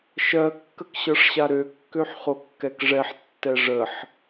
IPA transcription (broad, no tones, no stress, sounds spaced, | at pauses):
ʃ ɜ kː ə k ɕ ɤ ʂ ɕ a ɾ ø kː ø ħ χ o kː ɛ k ʐ ɛ ħ tː ɛ ʐ ə ħ